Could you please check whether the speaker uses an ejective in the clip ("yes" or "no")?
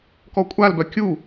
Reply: yes